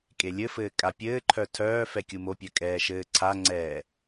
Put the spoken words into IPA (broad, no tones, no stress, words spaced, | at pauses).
kʼelʲɘfɘː kʼapʲɘːǃʰœ tʰœː fɛkʲumopʲœ kʼɛːʃɘːǀʰaŋ͡ǀɛː